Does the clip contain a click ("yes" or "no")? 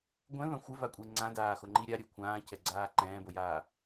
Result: yes